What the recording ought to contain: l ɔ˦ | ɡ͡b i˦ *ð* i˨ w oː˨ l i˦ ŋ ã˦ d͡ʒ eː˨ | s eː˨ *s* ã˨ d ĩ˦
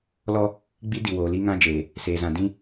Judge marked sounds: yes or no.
no, no

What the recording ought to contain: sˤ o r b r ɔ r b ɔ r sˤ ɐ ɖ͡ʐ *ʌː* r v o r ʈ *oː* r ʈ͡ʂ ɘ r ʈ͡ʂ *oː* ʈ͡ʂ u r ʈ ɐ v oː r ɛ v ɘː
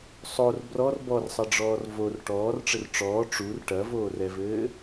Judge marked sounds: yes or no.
no, no, no

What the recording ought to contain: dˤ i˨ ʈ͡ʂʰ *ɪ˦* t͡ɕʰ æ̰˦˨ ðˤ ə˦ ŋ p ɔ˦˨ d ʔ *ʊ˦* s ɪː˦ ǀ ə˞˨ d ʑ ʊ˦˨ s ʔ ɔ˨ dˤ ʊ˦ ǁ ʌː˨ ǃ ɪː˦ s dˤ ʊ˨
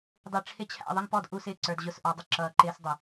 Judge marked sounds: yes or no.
yes, no

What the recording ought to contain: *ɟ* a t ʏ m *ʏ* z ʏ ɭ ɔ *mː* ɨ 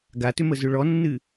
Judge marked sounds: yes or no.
no, no, no

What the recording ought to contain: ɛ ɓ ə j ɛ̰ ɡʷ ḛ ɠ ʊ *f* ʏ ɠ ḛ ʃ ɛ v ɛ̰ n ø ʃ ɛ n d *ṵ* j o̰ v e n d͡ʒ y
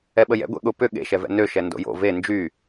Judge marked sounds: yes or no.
no, no

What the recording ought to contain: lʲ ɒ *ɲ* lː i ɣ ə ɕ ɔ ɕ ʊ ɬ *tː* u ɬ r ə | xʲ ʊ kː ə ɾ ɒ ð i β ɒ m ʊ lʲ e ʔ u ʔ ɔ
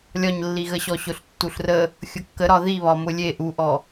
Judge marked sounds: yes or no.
yes, yes

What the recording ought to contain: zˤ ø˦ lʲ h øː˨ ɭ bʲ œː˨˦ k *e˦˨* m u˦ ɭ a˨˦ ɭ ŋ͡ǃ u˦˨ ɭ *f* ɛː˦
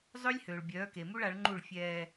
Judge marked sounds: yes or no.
no, no

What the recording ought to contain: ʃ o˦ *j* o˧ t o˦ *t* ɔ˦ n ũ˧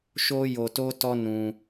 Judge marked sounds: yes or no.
yes, yes

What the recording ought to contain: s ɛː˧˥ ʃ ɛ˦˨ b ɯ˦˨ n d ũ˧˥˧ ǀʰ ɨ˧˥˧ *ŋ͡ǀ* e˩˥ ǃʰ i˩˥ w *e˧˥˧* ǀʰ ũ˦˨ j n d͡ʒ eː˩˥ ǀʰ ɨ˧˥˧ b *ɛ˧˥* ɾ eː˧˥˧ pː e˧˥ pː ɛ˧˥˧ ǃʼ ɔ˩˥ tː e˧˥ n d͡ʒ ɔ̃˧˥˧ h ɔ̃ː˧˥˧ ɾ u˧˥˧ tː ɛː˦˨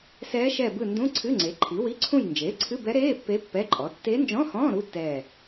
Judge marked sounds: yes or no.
yes, no, yes

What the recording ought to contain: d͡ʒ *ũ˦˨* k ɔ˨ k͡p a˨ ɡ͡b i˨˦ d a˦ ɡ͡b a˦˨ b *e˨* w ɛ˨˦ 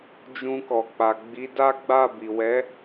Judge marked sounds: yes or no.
no, no

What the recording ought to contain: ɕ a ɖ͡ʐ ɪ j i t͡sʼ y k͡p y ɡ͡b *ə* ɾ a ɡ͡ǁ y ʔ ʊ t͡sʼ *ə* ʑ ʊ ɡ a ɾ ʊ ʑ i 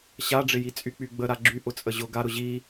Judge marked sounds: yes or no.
yes, yes

